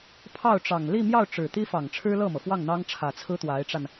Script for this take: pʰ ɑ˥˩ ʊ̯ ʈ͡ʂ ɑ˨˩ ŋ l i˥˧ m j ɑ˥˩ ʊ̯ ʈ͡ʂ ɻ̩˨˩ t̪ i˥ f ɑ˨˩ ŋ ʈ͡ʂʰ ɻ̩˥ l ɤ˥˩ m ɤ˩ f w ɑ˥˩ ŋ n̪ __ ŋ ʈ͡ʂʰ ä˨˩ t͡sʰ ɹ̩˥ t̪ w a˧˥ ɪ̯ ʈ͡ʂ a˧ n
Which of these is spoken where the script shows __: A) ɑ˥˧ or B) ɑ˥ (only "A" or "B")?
B